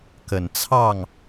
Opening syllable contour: low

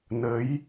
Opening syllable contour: rising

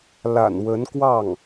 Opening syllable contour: low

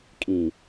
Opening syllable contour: low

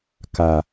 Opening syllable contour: low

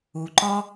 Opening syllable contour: low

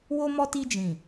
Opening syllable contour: high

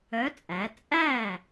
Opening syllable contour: rising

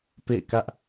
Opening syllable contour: falling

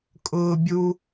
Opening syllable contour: high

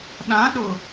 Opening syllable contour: rising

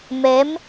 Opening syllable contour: rising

